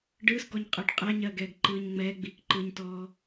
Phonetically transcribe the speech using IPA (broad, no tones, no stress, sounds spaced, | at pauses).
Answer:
ɖ ɯː s ɡ ɔ ɲ qʼ ɯ ɖ qʼ ɛ ɲ ɜː ɡ ɛː ɡ ǃ ɯː ɲ ŋ͡m ɛː ɡ͡b iː k ǃ ɯː ɲ t ɔː